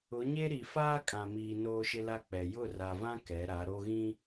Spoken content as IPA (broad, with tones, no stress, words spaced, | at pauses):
ʊ˨˦ɲe˦ɾi˨ faː˦kʼã˨miː˨ noː˦ʃɪ˦la˦ k͡pɛ˨ jʊ˦˨ra˨vã˦ kɛ˨˦ɾa˨˦ɾo˦ɣĩ˦